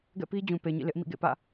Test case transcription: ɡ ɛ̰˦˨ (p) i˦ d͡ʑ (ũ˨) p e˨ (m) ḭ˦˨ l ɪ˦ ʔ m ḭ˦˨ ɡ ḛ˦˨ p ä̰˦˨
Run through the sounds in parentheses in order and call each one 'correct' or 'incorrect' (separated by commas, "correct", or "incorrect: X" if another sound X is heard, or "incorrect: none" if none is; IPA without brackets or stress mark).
correct, correct, incorrect: ɲ